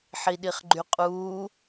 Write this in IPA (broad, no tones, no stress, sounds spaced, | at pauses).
ħ i ɗ i χ ɡ͡ǃ y qʼ uː